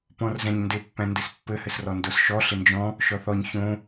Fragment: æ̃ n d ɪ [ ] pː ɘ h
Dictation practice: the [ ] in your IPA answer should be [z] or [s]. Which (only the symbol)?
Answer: s